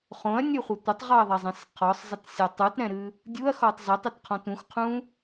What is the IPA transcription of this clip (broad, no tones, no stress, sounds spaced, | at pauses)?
χ õ ɐ̯ nʲ ɨ χʷ ɘ tʷ ɘ tˤ ʁ ɔ ɐ̯ ðˤ ɛ zˤ ɛ̃ s qʰ ɔ sˤ zˤ ɘ t sʲ ɔ tˤ u t ɾ ɛ̃ ɾ ɨ | dʲ u ɐ̯ x ɔ tˤ z ɛ tˤ ɘ t qʰ ɔ̃ t ũ x qʰ ũ